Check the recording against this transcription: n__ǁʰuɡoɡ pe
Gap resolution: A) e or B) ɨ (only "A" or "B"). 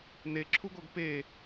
A